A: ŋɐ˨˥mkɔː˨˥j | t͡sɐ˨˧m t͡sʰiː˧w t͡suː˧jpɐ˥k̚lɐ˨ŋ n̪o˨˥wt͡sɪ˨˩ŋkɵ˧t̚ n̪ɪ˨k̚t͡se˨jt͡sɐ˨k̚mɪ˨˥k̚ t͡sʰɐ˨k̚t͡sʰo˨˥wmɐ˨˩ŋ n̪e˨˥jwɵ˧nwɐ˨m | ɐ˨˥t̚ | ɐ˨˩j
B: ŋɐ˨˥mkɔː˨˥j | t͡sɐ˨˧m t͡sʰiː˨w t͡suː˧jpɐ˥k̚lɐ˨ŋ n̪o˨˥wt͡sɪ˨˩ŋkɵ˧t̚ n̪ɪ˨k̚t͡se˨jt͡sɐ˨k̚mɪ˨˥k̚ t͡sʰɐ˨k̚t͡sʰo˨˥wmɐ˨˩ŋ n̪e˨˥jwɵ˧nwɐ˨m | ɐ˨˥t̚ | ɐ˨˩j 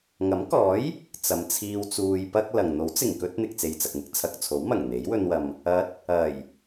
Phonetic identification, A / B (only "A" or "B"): A